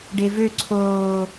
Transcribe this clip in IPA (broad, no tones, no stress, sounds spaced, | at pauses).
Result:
ɖ e v ø ǀʰ oː